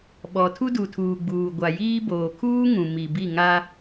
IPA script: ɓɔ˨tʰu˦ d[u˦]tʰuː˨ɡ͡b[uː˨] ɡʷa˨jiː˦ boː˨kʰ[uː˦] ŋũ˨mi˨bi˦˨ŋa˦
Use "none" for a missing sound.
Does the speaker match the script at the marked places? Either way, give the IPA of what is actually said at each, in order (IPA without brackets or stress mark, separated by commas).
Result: u˨, uː˨, uː˦